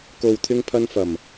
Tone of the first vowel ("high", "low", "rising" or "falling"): low